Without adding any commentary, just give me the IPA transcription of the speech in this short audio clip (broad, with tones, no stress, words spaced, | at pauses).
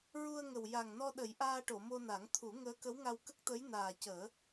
ɹu˧ə̯ŋə˨˩wja˨˩ŋ nɔ˧ɗə˨˩˦jʔaː˧ʈo˨˩˨ mo˧na˨˩˦ŋt̪ʰu˨˩˦ ŋəː˧˥kə˧˥wŋa˧w kə˦˥k̚t̪ə˧˥j naː˨˩cəː˨˩˦